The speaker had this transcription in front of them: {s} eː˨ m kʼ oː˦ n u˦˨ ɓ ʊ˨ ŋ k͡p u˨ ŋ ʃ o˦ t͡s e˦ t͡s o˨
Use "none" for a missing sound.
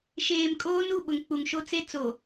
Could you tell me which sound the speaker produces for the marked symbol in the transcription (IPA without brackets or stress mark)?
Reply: ʃ